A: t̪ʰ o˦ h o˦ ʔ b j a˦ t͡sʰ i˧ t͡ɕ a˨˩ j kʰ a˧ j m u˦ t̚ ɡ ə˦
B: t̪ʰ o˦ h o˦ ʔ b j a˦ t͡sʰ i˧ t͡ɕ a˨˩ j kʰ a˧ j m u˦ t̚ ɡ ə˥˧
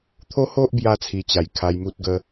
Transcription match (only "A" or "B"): A